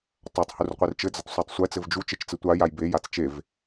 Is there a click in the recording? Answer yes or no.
no